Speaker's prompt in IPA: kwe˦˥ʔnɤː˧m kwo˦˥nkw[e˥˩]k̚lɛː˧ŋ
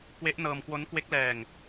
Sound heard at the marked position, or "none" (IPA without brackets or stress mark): e˦˥